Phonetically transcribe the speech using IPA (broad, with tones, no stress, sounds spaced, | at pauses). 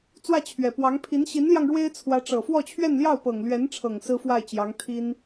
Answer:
t͡s w ä˥˩ t͡ɕʰ ɥ ɛ˨˩ p w ɑ˧˥ ŋ pʰ i˧˥ n ɕ i˧˥ n l j ɑ˧ ŋ ɻ w e˥ ɪ̯ t͡sʰ w ä˧˥ ʈ͡ʂ ɤ˨˩ f w ɔ˥˧ t͡ɕʰ ɥ ɛ˥˧ n l j ɑ˥˩ ʊ̯ p ɤ˨˩ ŋ l ɥ ɛ˧˥ n ʈ͡ʂʰ ɤ˨˩ ŋ s ɹ̩˥ f w a˥˩ ɪ̯ t͡ɕ j ɑ˧˥ ŋ t̪ʰ i˥ n